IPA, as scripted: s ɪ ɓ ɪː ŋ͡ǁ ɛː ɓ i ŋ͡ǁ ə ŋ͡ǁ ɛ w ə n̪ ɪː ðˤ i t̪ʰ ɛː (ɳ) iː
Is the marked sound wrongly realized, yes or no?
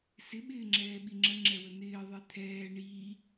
no